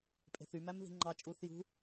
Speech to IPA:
pʼe̤θy mæmði̤ŋ͡ǃɑ t͡ʃʼuːθjṳ

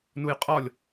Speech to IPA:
nujqʼɒlʲ

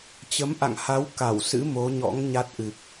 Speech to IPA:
t͡ɕə˨˦mʔa̰˧˨ŋha˨˦w ka˧˩wsɨ̰˧˥ mo˨˦ɲɔ̰˧˥ŋ ɲa˦˥t̚ʔɨ˨˩k̚

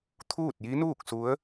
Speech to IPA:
t̪ʰuː˥˨t̚ji˧˥ nuː˥˨k̚su˧˥ə̯

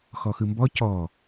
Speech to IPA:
xɔxɯmbɔ cɔ

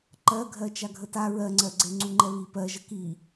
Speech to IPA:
ǃɜɡʱɜ t͡ʃaɡʱəta ɹɜŋ͡ǀɜɡ͡ǀe ŋ͡ǀuŋ͡ǃɛβi pɜʒə ki

